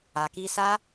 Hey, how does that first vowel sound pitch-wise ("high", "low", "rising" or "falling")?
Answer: low